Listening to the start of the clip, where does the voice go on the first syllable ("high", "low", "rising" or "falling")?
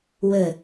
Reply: low